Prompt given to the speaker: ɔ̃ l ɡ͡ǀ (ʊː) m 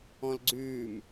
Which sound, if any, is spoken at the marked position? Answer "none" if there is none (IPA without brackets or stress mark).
ʉː